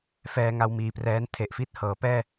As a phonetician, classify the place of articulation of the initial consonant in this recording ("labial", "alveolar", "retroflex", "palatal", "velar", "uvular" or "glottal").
labial